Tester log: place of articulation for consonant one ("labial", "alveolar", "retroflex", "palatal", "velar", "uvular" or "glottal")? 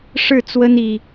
retroflex